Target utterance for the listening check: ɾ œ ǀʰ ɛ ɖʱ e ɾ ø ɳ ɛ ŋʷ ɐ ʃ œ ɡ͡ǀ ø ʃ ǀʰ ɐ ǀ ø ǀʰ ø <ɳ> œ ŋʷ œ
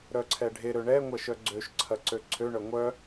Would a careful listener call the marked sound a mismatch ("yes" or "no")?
no